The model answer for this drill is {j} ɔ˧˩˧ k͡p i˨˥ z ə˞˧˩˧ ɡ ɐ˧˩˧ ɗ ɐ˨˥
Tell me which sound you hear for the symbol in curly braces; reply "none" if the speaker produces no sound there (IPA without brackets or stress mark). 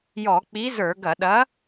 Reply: j